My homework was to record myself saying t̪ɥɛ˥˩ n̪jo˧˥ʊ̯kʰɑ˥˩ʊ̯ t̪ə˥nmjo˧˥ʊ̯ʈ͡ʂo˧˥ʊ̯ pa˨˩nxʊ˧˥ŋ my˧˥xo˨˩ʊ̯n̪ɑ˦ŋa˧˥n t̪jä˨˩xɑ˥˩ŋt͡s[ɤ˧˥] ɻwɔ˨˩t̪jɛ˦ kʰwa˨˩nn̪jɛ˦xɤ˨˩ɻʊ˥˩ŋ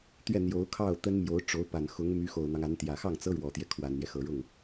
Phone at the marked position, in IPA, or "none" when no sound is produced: ɤ˥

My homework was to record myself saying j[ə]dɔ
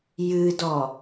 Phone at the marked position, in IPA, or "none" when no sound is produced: ɨ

